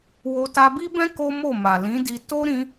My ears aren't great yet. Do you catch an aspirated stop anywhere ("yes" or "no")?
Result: no